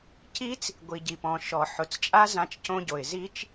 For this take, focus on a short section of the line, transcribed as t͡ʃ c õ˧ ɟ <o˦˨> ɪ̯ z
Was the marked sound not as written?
yes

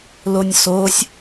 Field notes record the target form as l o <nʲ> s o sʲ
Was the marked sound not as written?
no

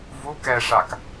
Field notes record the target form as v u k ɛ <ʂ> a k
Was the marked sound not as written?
no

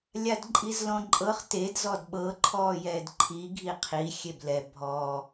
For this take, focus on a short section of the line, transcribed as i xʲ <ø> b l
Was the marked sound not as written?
yes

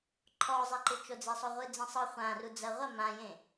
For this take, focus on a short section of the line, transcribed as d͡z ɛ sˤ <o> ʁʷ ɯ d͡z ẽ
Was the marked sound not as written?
no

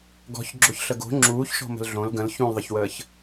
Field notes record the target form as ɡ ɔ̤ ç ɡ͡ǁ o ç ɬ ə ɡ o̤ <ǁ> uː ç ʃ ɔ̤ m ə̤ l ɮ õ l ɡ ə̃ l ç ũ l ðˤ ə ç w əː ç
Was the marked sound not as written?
yes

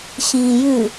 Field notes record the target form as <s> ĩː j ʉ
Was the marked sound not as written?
yes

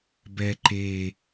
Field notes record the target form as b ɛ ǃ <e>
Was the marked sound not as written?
no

